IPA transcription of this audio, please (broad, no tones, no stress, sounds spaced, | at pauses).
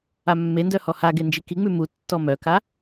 a mː e n d œ h ɔ h a ɡ e n d͡ʒ i k i ŋ͡m ʉ m u tː ɔ m œ k a